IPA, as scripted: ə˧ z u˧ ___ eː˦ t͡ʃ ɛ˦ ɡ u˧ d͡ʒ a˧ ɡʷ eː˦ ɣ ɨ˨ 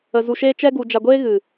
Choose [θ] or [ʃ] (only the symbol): ʃ